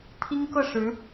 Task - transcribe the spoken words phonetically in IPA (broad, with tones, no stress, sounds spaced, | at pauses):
t̪ʰ i˥ ŋ k ɤ˥˩ ʂ ɻ̩˧˥